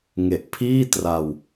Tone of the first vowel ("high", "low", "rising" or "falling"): low